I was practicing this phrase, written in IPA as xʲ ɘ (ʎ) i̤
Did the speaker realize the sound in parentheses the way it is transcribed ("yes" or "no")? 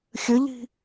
yes